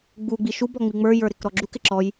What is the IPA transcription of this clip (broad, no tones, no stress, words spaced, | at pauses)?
ɡ͡buɡ͡bi ʃubɔ ŋ͡miŋ͡mə˞jə˞ ɾɪkɾɔɡ͡ǁukɪ ǁɔj